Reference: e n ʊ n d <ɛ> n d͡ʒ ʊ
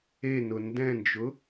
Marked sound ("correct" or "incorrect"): incorrect